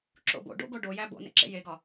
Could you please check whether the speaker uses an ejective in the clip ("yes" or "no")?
no